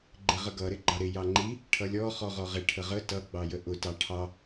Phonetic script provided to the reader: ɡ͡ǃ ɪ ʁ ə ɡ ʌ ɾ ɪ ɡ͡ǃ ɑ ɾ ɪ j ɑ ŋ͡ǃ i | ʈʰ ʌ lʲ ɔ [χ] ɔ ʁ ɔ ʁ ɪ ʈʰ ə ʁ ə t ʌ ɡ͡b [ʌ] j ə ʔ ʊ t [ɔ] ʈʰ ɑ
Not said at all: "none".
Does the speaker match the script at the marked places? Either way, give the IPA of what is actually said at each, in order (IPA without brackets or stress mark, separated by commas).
χ, ɑ, ɑ